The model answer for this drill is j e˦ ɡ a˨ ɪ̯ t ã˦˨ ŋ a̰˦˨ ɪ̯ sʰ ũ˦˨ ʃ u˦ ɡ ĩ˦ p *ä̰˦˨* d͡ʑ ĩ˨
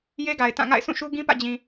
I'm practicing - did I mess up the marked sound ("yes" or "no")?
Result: no